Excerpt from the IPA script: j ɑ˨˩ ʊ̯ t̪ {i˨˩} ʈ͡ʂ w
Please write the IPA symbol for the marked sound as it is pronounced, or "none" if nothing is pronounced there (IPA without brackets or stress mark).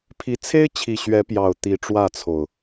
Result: i˨˦